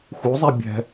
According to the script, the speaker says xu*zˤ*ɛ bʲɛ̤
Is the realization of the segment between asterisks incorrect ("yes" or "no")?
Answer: no